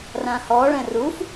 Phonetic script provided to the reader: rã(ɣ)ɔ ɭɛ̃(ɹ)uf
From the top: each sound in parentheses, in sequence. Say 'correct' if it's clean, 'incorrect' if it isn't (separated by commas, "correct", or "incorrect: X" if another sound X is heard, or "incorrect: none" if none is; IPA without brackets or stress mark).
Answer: incorrect: h, incorrect: r